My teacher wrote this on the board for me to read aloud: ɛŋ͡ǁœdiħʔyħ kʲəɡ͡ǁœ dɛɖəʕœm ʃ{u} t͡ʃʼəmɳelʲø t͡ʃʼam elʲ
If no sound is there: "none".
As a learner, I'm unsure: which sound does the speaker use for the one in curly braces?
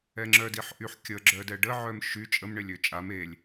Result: y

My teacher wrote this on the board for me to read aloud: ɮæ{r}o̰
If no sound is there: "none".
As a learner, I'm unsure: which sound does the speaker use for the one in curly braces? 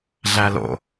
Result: l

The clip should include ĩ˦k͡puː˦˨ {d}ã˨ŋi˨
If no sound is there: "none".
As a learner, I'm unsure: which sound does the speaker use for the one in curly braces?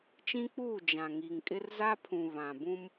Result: d͡ʒ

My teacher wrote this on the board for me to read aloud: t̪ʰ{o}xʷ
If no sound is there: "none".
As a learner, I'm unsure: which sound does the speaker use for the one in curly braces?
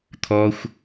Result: ɔ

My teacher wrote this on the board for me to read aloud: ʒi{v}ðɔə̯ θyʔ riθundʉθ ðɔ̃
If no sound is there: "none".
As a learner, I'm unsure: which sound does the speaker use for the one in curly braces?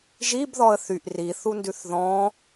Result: b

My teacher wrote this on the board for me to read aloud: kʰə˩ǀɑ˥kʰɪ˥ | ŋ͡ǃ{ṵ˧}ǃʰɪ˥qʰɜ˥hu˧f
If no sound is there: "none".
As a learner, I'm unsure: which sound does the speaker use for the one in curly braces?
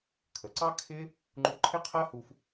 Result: u˧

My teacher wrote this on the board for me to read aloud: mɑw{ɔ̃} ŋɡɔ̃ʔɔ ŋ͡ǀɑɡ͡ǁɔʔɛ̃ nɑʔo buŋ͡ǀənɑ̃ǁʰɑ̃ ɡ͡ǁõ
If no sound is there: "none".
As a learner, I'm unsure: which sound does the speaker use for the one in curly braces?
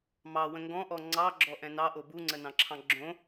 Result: ə̃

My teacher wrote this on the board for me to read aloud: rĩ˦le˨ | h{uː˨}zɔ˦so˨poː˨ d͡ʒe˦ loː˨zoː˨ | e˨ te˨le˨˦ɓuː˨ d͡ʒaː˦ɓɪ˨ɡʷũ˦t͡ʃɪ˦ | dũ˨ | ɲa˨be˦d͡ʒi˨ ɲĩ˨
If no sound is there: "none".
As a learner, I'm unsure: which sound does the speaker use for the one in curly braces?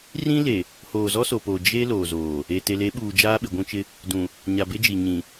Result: oː˨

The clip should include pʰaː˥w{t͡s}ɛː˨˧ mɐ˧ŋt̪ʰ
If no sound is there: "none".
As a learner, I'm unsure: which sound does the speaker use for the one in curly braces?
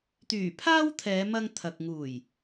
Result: t̪ʰ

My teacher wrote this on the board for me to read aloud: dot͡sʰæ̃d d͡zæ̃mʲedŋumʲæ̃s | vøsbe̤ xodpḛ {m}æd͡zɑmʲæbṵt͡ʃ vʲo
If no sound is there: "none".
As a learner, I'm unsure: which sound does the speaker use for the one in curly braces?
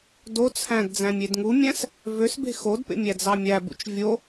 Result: mʲ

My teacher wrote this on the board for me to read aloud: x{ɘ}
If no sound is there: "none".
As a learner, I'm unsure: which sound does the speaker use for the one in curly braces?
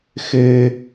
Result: ɘ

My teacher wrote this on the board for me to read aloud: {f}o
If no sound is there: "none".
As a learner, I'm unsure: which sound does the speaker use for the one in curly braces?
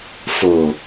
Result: f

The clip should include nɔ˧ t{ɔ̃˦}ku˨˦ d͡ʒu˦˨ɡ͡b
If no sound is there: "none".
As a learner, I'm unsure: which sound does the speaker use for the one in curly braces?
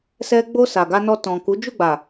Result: ɔ̃˨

